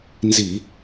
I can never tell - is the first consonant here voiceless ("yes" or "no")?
no